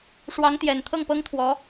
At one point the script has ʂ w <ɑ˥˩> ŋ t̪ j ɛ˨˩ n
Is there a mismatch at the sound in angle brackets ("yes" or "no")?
yes